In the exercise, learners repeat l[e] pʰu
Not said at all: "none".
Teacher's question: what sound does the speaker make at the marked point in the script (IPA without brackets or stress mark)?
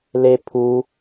e